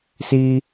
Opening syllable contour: high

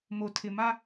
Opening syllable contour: low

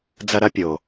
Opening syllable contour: high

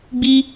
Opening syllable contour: high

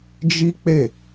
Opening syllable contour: high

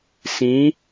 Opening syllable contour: rising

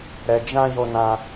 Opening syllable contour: low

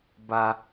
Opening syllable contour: high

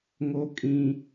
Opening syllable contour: high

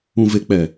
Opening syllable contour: low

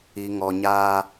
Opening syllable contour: low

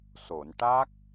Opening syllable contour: low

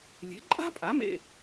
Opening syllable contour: rising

